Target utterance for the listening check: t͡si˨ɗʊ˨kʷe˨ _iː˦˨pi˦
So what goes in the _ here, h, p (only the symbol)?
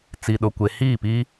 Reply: h